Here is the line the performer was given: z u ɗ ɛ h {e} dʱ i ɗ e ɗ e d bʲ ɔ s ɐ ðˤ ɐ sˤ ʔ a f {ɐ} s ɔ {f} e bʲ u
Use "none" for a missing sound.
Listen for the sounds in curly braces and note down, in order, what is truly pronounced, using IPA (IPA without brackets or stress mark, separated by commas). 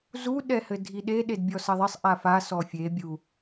ɘ, a, fʲ